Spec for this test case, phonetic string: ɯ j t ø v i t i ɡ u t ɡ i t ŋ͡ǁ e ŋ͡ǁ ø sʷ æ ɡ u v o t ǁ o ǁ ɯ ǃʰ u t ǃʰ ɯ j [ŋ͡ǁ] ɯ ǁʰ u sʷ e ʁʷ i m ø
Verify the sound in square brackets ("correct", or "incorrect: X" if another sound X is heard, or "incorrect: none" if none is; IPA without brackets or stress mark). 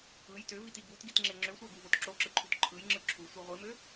correct